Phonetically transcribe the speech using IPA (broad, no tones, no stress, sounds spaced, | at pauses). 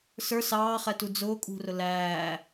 s ə˞ s ɑː χ ɛ t u d͡z ʊː kʼ ṳ r ʊ l æː